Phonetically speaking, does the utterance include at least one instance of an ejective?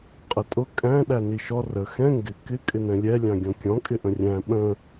yes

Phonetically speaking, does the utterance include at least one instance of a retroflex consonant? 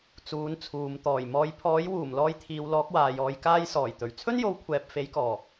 no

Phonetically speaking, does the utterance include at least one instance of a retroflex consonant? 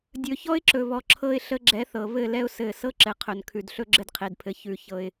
no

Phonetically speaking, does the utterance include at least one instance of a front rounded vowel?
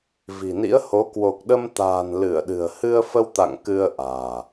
no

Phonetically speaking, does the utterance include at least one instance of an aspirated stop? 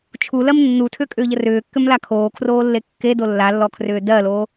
yes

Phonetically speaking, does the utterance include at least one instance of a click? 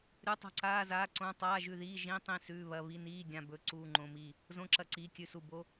yes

